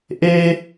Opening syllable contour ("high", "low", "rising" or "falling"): high